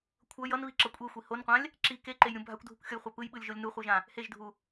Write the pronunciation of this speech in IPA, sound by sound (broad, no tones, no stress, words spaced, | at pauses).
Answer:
kʷʰʌ jʌnβiǁʌ kʷʼexʷi honqʷãlʲ | ǁi keǃejɾʲũ bʱakʷdʱukʷxʲʌjχʷa pɯjɓɯlʲʒolʲ nuχʷɯʒã | heʒdʱu